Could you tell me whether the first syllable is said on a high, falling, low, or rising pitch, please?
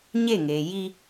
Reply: falling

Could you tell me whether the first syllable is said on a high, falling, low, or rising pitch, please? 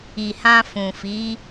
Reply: low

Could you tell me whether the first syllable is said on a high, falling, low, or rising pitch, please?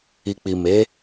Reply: low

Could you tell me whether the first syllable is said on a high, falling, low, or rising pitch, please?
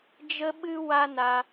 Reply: high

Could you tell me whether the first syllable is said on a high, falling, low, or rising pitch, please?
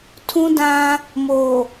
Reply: high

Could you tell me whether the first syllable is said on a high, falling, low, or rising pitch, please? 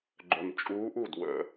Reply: low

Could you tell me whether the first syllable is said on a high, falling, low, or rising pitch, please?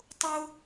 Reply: high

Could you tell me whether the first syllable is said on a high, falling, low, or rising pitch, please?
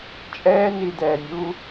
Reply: high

